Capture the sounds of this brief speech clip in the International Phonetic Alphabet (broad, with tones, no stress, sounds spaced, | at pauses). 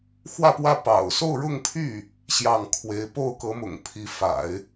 x w ä˥˧ p w ä˥˩ p ɑ̰˨˩ ʊ̯ s o˥˧ ʊ̯ ɻ ʊ˥˧ ŋ pʰ y˥˩ | ɕ j ɑ˥˩ ŋ kʰ w e˧˥ ɪ̯ p o˥˩ ʊ̯ k ɤ˧˥ m ʊ̰˨˩ ŋ pʰ i˧˥ f a̰˨˩˦ ɪ̯